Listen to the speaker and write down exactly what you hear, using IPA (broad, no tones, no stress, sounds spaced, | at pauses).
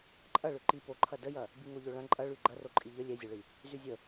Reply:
ǃʼ ɐ ɭ ʏ ǃ i p o ǃʰ ɐ d ə j ɐ | b i ŋ o ʎ o ɭ ɐ̃ ǃʼ ɐ ɭ y ɡ͡ǃ ɐ r o ǃʼ i ʎ ə lʲ ɛ zʲ o ɭ i | z y zʲ ə